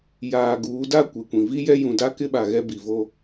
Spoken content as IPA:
j aː˨ ɡ uː˨˦ d a˦ kʷ e˨ kʷ ĩ˨ v i˦ j ɛ˦ j ũ˨ d a˦ k ɪ˦ ɓ a˨ ɣ ɛ˦ b i˨ v o˦

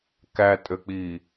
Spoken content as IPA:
k æ tʼ ø k͡p i

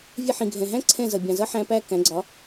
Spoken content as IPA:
vʲ ɛ˧ ħ ĩ˩ ɡʱ ɛ̃˩ ɦ æ̃˥ ǀʰ ɛ̃˥˩ z ʌ˩ bʲ ɑ̃˩ z ʌ˥ ħ æ̃˧ p æ˥˩ k æ̃˩˥ ɡ͡ǀ ɒ˩˥

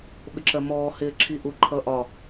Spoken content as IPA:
ɓ ɪ ǁ ɜ m ɔː h ɪː ǁʰ i ʔ u ǃʰ ʌ ʔ ɒ

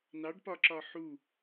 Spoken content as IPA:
n ɑ ɖ p ɒ ǁ ɒ ħ u

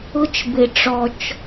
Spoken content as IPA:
ʊ˧ t͡ʃ b ɪ˨ ʈ͡ʂ ɔ˨ t͡ʃ

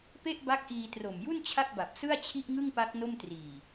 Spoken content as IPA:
p e˥˩ ʔ b a˦˥ k̚ ʔ iː˧ t r o˨˩ m j u˥˩ n t͡ɕʰ a˥˩ k̚ b a˨˩ p̚ s ɯ˥˩ a̯ t͡ɕʰ i˥˩ ʔ ŋ ɯ˥˩ ŋ p a˦˥ k̚ n o˥˩ m t r iː˨˩

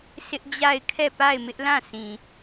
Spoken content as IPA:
s ɪ˦ ʔ d͡ʑ a˦˨ ɪ̯ kʰ ɛ˦˨ p a˦˨ ɪ̯ m ɪ˦ ʔ l ã˦˨ s ĩ˨

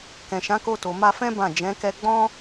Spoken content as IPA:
k ɛ̃˨ ʃ ã˨˦ k o˧ t o˨ m a˧ f ɛ̃˦ b ã˦˨ d͡ʒ ɛ̃˨˦ k ɛ˧ ɡ͡b ɔ̃˦

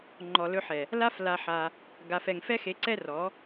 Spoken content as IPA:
ŋ͡ǃ ɔ˨ l ɵ˧ ħ ɛ˨ | l a˦ f l a˧ ħ a˧ | ɡ a˨ f ɛ˨ ŋ f ɛ˦ x e˨˦ ǀ ɛ˦ r ɔ˨˦

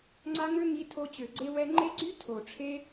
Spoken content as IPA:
ŋ͡ǀ a˧ ŋ ø˦ ŋ i˧ tʰ o˧ t͡ɕ ø˨ ɡ͡ǀ e˧ w ɛ˧ ŋ͡ǃ e˦ ɡ͡ǀ y˦ tʰ o˨ ʈ͡ʂʰ e˦

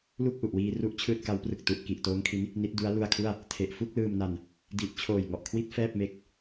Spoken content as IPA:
l u˥˩ k̚ ʔ u˨˩ ʔ w iː˧ r u˥˩ ʔ t͡ɕʰ ɯː˥˩ t̚ k a˦˥ w p r ɯ˨˩ k̚ t u˨˩ ʔ k i˨˩ ʔ t oː˦˥ ŋ kʰ i˦˥ n | n i˦˥ t̚ d u˦˥ a̯ l u˧ a̯ kʰ u˥˩ a̯ | tʰ e˨˩ ʔ f u˥˩ k̚ l ɯː˧ m n a˧ n | d i˨˩ ʔ t͡ɕʰ oː˨˩ j ŋ ɔ˨˩ ʔ kʰ w i˥˩ t̚ f ɛː˥˩ p̚ m e˦˥ k̚

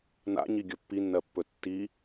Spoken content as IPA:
n a̰ ɲ i ɡʲ ɵ pː i nː ɜ pː ɵ tː i

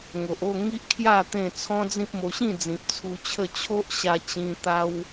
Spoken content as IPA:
ŋ o˨ ʔ o˥˧ ŋ i˦ ʔ kʰ j a˥˧ t̪ ẽ˥˧ t͡sʰ ɔ̃˦ d͡z ĩ˦ p̚ m o˧ ɕ ĩ˥˧ d͡z ĩ˨ p̚ t͡sʰ u˧ t͡ɕʰ ə˥˧ t͡ɕʰ o˦ ʔ ɕ a˧ t͡ɕ ĩ˧ t̪ a˦ w

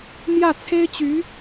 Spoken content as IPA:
m j ä˥˩ t͡sʰ e˥ ɪ̯ t͡ɕ y˧˥

